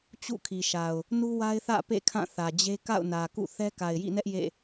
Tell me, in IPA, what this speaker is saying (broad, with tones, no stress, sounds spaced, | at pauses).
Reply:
t͡ɕ ṵ˦˨ kʰ i˨ ʃ a˨ ʊ̯ | n u˦ w a˦ ɪ̯ θ ä̰˦˨ p ḛ˦˨ kʰ ã˦˨ θ ä˨ d͡ʑ e˦ k a̰˦˨ ʊ̯ n ä˨ k ṵ˦˨ θ ɛ˦ k a˨ ɪ̯ j ḭ˦˨ n ɛ˦ ʔ j ḛ˦˨